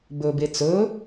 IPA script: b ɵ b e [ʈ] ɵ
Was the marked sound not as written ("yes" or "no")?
yes